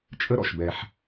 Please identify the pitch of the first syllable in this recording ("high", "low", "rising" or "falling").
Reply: high